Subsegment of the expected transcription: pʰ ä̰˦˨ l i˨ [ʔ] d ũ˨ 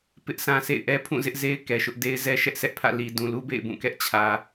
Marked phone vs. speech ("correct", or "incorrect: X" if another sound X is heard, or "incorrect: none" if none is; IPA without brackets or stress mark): incorrect: none